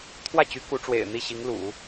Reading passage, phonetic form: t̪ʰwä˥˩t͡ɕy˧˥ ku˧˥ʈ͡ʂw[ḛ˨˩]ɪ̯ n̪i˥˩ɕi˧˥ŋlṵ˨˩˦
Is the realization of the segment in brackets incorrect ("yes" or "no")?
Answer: no